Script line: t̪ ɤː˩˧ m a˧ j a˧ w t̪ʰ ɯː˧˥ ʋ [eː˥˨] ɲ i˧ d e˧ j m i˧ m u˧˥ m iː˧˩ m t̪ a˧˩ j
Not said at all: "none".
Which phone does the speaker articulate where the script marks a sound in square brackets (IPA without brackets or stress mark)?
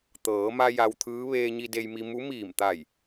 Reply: eː˧